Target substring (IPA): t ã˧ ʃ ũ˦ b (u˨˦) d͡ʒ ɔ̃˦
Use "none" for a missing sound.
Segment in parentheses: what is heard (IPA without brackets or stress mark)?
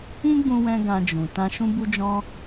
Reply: u˦